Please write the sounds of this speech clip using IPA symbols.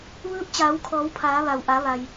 ʋ ɯː˧˥ p̚ t͡ɕ aː˩˧ w kʰ ɔː˩˧ w pʰ aː˩˧ ʋ a˩ w ʔ a˩˧ ʋ a˩ j

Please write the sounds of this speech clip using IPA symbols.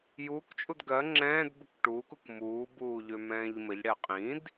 j uː k t͡ʃʼ u d ɡ ɜ ŋ͡ǁ ɛ̃ː d b ə k ʈ uː k u k m uː b uː ʎ ø m ɛ̃ː ʎ m ə ʎ ɽ ɛ qʼ ĩ d

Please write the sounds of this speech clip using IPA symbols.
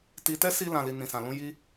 t i˧ t ɛ˦ s i˧ l ã˨ l i˨ n ĩ˨ s ã˨ l ũ˧ j i˧

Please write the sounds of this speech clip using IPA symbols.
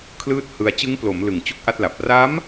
kʰ l ɯː˥˩ t̚ h ɯ˧ a̯ t͡ɕ ɯ˦˥ ŋ p l o˩˦ m l ɯ˨˩ ŋ t͡ɕ u˥˩ k̚ ʔ a˥˩ t̚ l a˨˩ p̚ r aː˦˥ m

